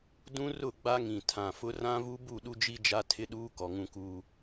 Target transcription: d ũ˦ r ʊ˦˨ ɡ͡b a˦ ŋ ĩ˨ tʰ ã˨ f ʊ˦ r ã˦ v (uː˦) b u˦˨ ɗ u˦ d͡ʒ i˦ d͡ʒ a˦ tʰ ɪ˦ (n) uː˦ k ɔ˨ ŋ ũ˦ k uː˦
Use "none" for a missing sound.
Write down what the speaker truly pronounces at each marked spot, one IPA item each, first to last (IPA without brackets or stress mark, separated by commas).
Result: u˦, ɗ